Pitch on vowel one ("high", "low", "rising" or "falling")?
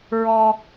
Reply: high